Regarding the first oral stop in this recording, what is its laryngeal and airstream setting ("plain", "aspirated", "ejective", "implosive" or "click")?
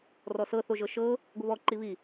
plain